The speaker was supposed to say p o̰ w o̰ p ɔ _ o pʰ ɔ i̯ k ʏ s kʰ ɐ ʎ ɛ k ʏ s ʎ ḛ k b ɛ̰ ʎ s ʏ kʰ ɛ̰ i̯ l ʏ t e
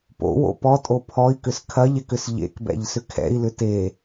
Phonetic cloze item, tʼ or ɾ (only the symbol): tʼ